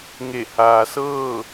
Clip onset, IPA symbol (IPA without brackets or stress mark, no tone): ŋ